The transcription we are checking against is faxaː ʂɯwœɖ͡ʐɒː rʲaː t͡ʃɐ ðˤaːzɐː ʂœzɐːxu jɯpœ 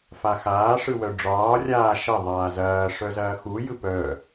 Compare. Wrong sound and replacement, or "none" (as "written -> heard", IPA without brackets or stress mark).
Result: t͡ʃ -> ʃ